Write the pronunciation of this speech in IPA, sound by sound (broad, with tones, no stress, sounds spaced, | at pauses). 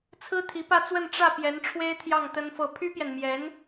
t͡sʰ ɹ̩˥ t̪ʰ i˧˥ p ä˥˧ t͡s w ə˥˧ n ʈ͡ʂ ä˥˩ p j ɛ˧˥ n ʈ͡ʂʰ w e˥ ɪ̯ t̪ʰ j ɑ˥˩ ŋ t̪ ə˥ n f ɤ˥˩ pʰ y˥ p j ɛ˨ n m j ɛ˧˥ n